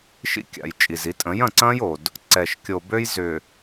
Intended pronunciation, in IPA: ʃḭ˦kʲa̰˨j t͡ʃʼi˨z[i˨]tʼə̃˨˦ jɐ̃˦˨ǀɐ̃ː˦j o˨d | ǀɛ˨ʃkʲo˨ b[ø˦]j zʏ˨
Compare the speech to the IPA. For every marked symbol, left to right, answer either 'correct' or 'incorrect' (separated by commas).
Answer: incorrect, correct